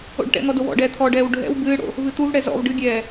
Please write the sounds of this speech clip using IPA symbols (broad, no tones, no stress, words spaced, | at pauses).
o̰ɖʈɛ̰ŋɔ dowɔ̰ɖɛː t̪ʰɔɖɛːw ɖʱɛ̰w bɨːɽo̰ | vɨt̪uvɽɛ zɔ̰v ɖɨɡʲɛː